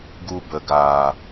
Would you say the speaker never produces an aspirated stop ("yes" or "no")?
yes